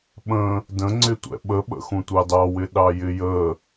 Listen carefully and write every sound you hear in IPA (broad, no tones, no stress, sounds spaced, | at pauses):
ɓ ə̃ | d ə̃ ŋ͡ǀ ɪ tʷ ɛ̰ ɓ ə ɓ ə̰ x ũ tʷ ɑ d ɑ w ɪ ɗ ɑ j ɪ j ə